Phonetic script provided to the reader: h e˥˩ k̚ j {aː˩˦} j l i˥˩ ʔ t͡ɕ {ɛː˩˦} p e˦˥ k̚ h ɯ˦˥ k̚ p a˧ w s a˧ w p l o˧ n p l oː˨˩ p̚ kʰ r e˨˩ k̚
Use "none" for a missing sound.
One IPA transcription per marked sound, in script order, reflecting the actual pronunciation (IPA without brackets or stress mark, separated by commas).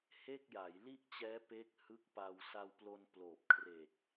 a˩˦, ɛː˦˥